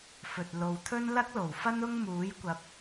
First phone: f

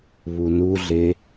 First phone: β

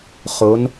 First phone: χ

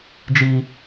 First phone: d͡ʒ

